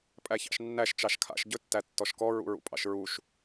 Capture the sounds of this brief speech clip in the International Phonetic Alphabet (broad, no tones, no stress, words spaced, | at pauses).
pʼæçɑ̰ʃnːæʃ t͡ʃɑʃkʰa̰ʃ ɟɵtːætːɔʃkɔ ɹṵɹṵpʼɑ̰ʃɹuʃ